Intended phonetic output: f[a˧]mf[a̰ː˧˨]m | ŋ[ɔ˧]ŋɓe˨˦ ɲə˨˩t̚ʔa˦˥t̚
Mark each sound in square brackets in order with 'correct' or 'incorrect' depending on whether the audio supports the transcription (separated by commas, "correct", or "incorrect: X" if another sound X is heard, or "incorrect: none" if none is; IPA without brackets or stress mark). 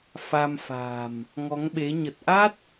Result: correct, incorrect: a̤ː˨˩, incorrect: ɔ˨˦